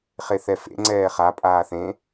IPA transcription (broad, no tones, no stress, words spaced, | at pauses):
χeθɛfḛ ŋ͡ǀɛːχa pʼaːθẽ